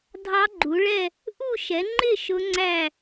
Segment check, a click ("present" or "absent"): present